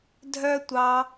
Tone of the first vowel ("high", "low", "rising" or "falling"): high